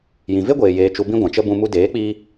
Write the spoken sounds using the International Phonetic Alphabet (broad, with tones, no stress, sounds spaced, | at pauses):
j ĩ˨ v e˦ ɡʷ eː˨ j eː˨ t͡ʃ u˨ b ĩ˦ ɡʷ ã˨ t͡ʃ ə˦ b ũ˧ m u˧ d eː˨˦ k͡p iː˧